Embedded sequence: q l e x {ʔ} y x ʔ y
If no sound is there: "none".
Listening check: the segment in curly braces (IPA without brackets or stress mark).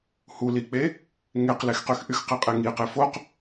q